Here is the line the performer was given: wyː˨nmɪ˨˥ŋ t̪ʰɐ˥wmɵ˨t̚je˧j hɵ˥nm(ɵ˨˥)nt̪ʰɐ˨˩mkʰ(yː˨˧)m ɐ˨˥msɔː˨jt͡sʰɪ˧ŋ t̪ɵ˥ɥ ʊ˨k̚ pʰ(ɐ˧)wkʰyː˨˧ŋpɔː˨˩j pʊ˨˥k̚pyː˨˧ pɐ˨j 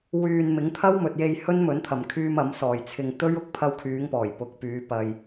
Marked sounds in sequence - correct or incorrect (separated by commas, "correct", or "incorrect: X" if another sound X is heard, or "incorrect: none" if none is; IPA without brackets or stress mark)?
correct, incorrect: yː˧, correct